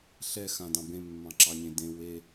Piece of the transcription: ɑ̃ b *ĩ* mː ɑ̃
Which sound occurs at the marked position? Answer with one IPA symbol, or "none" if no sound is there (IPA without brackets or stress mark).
ẽ